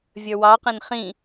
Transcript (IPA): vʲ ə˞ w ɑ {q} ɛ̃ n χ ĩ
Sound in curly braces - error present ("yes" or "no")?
no